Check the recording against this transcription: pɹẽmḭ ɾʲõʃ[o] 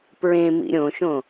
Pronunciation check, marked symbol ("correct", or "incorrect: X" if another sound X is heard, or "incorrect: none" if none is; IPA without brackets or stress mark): incorrect: õ